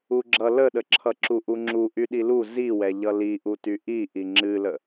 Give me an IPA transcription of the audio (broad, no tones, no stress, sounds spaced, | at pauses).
u ɡ͡ǁ ʌ l ə ɗ ə ǁʰ ʌ ǁ u ʔ u ŋ͡ǁ u ʔ y ɗ i l u z i w ɛ ʎ ʌ l i ʔ u t y ʔ i ʔ i ŋ͡ǁ ɨ l ə